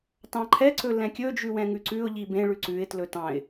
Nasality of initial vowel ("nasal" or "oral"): nasal